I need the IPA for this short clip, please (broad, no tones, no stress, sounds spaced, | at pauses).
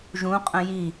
ʒ ũ qʼ ə̃ j i